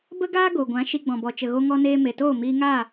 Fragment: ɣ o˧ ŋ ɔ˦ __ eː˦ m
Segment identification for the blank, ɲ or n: n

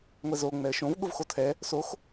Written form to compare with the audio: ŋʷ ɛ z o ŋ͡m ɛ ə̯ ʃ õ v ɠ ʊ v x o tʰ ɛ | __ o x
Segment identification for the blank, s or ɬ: s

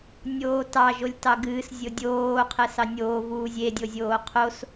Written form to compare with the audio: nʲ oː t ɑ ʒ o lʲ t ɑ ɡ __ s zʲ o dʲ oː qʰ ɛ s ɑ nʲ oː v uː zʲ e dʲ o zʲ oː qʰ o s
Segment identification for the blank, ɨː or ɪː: ɨː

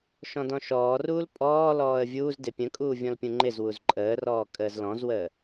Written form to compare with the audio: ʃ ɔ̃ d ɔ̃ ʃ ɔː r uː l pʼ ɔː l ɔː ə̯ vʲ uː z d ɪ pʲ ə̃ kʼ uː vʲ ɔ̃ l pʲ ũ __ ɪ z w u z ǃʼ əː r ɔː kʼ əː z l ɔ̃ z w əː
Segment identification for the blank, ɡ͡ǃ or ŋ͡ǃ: ŋ͡ǃ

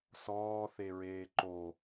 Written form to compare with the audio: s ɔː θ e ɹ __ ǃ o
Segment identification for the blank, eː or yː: eː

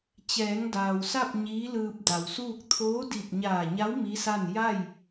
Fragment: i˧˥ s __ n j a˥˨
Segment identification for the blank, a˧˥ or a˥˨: a˥˨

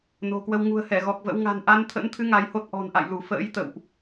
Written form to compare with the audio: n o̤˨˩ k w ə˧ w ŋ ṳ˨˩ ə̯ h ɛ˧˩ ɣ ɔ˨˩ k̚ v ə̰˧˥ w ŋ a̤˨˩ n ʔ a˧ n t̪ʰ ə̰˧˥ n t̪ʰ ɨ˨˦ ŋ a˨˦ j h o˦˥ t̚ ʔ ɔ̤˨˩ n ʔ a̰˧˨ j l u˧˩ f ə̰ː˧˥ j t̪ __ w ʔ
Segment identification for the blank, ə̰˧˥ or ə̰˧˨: ə̰˧˨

